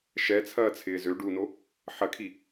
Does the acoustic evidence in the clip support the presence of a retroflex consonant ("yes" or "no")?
yes